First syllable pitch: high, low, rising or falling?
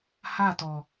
falling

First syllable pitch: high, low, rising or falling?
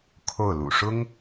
falling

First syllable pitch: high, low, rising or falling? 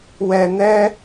low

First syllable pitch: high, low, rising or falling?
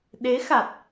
rising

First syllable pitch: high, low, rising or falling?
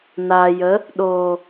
low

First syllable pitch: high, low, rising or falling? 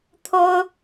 high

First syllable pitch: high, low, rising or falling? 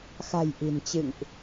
low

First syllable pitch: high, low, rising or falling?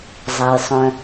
low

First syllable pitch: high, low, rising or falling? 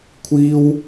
high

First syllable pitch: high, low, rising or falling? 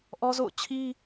high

